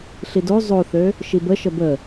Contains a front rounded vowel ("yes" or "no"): yes